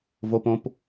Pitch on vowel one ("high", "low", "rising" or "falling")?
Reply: high